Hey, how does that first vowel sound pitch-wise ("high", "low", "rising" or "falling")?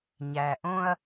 low